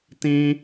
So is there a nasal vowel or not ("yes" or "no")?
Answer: yes